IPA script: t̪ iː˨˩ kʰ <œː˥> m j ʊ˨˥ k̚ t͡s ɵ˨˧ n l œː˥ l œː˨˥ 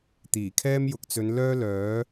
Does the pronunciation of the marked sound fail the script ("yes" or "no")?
yes